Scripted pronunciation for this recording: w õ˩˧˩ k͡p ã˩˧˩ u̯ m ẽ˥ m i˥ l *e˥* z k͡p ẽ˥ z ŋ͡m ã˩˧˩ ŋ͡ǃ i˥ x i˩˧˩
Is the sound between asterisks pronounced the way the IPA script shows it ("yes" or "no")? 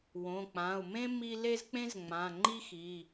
yes